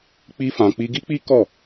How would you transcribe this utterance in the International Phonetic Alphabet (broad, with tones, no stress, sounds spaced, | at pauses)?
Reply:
k͡p i˧ f ã˨ k͡p i˧ ɡ i˦ k͡p i˦ k ɔ˦˨